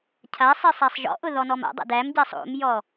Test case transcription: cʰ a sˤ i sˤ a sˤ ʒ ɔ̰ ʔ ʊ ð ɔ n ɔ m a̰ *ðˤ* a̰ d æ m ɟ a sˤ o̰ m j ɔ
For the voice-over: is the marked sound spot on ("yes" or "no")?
no